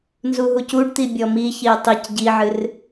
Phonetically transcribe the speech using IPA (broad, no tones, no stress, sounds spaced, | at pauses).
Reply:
n z u ɦ u c u ɖ t̪ i bʲ ɔ m i ç i ə̯ tˤ i c ɟ i ʕ ɨ r